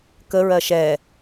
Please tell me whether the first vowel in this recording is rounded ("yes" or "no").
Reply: no